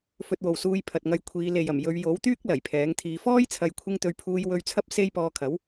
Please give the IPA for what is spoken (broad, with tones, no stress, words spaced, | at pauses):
fɵ˧t̚wo˨wsuː˧j pʰɐ˨t̚ŋɐ˧jkʷʰiː˨˧ le˨jɐ˨˩m jɵ˨˧ɥ jo˨˥wt̪yː˥k̚ lɐ˨˩jpʰɛː˨˥ŋt̪ʰiː˧ fɔː˥jt͡sʰɐ˨˧jkʷʰɪ˧ŋt̪ɵ˨˧ɥ pʰuː˧jwɵ˧ɥt͡sʰɐ˥p̚ se˥j pɔː˧kʰɐ˨˥w